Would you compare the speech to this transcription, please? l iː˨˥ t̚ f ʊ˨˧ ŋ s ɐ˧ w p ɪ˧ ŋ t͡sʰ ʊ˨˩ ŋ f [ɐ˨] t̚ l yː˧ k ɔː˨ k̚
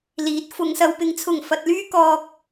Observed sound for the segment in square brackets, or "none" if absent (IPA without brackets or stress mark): ɐ˨